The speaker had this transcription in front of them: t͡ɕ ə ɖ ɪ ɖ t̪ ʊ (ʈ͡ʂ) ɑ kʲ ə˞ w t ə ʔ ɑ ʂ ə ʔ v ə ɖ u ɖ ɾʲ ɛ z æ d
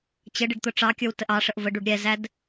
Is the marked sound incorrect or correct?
correct